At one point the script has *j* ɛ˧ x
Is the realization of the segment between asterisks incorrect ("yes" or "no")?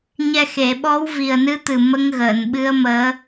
yes